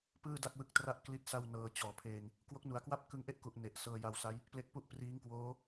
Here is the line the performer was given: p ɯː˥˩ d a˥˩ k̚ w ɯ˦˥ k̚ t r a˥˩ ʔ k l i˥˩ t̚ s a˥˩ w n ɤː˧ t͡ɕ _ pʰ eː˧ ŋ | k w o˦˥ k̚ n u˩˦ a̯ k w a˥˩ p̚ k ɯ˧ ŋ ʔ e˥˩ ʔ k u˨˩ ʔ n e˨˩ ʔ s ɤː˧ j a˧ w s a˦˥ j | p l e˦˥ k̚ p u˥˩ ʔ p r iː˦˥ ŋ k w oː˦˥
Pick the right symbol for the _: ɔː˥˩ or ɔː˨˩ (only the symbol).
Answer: ɔː˨˩